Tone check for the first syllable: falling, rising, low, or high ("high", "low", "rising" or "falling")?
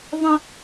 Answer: high